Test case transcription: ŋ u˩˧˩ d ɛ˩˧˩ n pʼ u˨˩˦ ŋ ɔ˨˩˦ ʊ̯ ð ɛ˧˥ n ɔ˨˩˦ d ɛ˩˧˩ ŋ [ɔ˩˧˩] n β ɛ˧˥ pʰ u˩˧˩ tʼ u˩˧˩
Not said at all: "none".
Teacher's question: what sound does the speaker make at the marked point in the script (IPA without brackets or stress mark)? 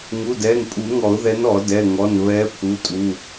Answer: ɔ˩˧˩